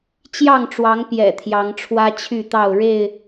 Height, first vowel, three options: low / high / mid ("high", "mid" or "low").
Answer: low